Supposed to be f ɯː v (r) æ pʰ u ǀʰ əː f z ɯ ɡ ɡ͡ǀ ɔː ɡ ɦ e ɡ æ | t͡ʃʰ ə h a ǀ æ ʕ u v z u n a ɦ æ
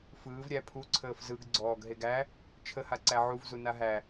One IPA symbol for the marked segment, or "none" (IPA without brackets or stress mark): ɾʲ